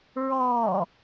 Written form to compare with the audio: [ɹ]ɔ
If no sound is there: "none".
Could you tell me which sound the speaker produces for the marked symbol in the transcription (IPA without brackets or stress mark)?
ɹ